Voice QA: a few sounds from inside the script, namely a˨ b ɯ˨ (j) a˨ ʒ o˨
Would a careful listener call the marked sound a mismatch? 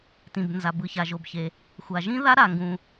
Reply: yes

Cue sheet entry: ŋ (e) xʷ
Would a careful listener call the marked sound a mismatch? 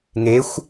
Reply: no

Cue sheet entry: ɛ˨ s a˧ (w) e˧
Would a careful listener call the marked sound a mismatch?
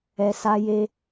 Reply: yes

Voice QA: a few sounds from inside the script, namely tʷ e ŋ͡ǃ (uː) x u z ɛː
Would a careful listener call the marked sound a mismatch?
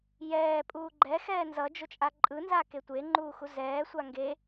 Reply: no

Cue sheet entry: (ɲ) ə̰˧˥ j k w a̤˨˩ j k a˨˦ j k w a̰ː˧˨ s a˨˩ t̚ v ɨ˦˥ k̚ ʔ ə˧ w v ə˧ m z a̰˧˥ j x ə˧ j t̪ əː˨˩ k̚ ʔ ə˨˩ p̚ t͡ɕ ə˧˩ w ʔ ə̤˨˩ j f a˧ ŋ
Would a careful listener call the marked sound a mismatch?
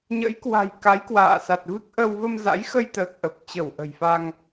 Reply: no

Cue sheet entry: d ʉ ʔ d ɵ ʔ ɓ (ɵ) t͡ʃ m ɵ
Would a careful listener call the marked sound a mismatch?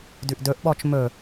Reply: yes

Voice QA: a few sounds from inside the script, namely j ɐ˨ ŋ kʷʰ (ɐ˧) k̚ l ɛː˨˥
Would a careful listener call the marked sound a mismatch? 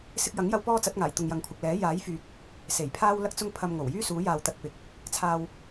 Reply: yes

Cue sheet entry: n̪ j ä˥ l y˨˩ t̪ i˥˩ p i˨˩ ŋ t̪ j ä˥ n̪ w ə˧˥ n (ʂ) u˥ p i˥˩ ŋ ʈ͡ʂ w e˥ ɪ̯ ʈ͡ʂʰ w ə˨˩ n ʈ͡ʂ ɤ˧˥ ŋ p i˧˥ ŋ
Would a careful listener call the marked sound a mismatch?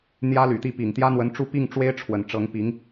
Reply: yes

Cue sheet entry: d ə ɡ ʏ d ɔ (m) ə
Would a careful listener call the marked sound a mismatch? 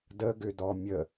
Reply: yes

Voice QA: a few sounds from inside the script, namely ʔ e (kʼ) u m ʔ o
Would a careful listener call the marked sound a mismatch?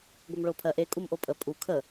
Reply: no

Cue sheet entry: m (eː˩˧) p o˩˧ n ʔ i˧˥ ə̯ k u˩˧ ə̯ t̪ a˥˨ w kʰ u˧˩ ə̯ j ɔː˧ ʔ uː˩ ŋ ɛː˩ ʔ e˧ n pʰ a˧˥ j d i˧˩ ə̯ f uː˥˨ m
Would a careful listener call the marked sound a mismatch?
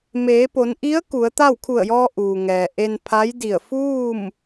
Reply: no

